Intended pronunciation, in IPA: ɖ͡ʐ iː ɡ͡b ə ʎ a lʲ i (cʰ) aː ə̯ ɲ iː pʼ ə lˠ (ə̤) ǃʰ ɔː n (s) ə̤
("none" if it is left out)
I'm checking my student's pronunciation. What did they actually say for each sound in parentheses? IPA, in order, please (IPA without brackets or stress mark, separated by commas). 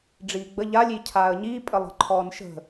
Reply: cʰ, ə̤, ʃ